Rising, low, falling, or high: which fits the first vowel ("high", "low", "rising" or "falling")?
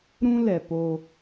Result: high